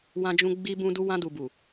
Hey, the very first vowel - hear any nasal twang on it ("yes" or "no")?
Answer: yes